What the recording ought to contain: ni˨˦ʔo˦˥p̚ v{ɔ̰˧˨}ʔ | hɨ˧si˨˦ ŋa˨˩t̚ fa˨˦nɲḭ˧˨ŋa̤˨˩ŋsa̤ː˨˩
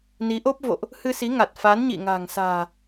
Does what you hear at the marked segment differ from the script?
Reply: yes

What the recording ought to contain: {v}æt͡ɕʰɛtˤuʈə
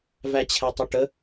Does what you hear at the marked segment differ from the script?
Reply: no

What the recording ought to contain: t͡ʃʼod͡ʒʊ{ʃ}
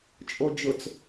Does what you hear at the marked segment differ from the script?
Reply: yes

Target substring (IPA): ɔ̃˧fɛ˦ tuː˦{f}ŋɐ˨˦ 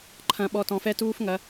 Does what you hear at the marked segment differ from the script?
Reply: no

